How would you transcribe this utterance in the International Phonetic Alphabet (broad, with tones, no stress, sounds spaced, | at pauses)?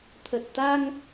t̪ʰ ə˨˩ t̚ t̪ a˧ ŋ